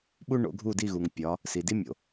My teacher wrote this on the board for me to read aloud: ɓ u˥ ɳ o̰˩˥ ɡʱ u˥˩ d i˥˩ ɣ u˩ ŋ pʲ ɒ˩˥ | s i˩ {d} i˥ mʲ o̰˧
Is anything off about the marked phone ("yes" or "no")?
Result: no